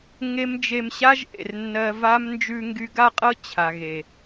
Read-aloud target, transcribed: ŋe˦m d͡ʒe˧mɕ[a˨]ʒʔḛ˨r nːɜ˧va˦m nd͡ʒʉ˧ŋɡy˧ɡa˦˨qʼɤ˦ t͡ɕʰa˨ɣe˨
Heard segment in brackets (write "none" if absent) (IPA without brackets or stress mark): a˦